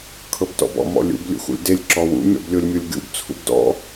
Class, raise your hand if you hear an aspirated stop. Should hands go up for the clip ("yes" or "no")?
yes